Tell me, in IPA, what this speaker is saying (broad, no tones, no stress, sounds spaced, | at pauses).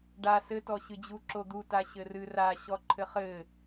ɖ a s ɘ t ɔ ɕ ɨ d͡ʑ u ǁ o d̪ u t a ɕ ɘ r ɨ r a ɕ ɔ ǃʰ ɘ χ ɘ